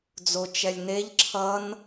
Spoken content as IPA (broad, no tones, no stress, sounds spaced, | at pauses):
d͡z o t͡ʃ ɛ lʲ n e ʎ ǁʰ ʌ n